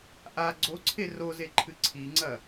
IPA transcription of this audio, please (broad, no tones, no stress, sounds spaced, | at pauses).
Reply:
ʔ a ɡ͡ǀ o ǀʰ e r o z e ǃʰ ɨ ǀʰ i ŋ͡ǀ ɐ